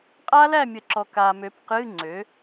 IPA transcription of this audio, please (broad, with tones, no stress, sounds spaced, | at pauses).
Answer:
qʼ a˦˥ l æ˥˨ mʲ ə˨˩˦ ǁ ɔ˨ k a˨ m ø˩˥ p q ɨ˧˥˧ ŋ͡ǀ ø˩˥